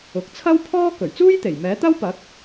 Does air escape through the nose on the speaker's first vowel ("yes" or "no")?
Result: no